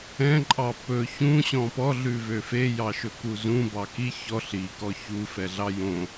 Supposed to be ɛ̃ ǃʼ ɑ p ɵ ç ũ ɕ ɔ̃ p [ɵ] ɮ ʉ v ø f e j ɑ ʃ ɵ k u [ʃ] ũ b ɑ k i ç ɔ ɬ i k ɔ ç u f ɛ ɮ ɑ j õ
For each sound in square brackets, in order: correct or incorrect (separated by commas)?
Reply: incorrect, incorrect